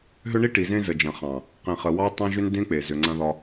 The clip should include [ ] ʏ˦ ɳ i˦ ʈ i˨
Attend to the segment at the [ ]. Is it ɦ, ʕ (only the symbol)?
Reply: ɦ